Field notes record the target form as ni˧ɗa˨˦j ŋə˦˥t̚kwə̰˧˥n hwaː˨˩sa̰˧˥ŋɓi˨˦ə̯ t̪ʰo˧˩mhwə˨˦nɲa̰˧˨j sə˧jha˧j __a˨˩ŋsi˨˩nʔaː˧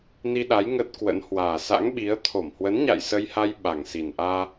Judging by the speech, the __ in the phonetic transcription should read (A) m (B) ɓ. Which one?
B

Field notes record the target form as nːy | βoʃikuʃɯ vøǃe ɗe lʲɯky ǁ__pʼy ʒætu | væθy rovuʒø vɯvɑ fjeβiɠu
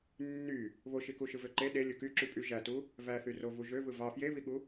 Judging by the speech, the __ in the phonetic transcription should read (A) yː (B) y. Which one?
B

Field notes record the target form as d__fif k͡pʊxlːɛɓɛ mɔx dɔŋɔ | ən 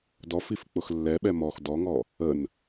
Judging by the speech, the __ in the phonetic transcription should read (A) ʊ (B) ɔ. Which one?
B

